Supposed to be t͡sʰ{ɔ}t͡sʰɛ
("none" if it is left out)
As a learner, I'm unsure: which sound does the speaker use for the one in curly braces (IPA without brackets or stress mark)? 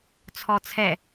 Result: ɔ